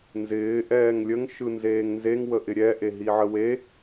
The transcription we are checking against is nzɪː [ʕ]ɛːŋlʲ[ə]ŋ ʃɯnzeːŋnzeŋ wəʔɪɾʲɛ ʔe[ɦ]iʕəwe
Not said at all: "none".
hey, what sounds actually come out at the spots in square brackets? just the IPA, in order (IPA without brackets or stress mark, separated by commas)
ʔ, ə, ɦ